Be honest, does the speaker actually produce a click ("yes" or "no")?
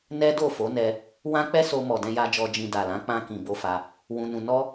no